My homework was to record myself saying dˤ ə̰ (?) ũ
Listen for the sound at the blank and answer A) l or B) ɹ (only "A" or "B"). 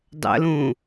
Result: A